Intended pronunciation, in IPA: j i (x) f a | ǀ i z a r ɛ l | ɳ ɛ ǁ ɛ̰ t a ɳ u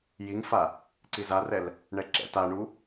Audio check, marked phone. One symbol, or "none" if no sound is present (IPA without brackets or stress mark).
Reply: ŋ